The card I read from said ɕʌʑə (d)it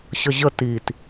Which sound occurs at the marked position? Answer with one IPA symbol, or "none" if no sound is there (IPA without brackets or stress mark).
t